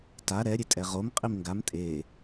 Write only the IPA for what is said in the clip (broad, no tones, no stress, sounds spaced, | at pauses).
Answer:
t a ɾ ɛ ɾʲ e tʼ ɛ ʁ o m qʼ i m ŋ ɡ a m tʼ e